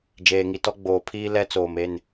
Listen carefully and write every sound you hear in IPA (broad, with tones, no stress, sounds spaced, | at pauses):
d͡ʒ eː˨ ŋ i˨ t ɔ˦ ɡ͡b oː˨ pʰ iː˦ l ɛ˦ t͡s oː˨ m e˦˨ n